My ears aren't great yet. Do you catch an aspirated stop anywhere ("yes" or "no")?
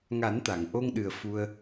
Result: no